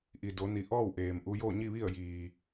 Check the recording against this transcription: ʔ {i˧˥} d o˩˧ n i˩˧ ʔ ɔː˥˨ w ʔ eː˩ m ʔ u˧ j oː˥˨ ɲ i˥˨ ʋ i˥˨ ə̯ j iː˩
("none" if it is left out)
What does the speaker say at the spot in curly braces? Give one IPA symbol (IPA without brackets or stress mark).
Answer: i˩